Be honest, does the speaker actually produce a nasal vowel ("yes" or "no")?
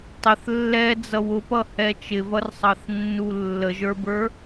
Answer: no